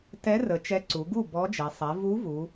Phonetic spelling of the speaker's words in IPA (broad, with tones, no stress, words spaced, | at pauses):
tɛ˧˥ rə˩˧t͡ʃɛ˧˥ ǀu˩˧ ɡu˥˩ bɔ˧˥d͡ʒɛ˩˧ sˤɛ˩˧ vu˧˥vu˩˧